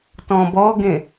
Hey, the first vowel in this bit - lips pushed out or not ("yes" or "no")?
yes